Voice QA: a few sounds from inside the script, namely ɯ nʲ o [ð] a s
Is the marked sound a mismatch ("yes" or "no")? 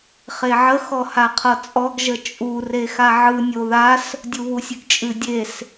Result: no